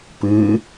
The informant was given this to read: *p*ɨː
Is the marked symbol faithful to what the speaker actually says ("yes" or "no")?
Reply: yes